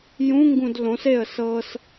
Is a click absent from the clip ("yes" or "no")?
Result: yes